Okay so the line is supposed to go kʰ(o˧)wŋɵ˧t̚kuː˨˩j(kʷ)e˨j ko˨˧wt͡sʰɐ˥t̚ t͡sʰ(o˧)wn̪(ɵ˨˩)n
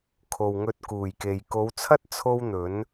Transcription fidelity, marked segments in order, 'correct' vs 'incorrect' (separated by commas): incorrect, incorrect, incorrect, incorrect